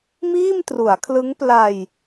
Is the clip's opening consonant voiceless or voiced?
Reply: voiced